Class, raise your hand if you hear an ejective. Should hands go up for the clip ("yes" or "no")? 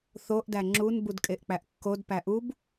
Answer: yes